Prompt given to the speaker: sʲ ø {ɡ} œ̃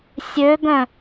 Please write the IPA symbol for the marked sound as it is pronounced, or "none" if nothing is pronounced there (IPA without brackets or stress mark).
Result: ɡ